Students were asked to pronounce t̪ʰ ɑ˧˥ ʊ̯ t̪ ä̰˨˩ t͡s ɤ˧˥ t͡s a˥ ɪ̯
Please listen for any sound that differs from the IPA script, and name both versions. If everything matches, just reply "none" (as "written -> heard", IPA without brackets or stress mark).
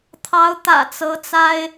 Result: none